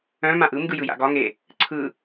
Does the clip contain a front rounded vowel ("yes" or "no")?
yes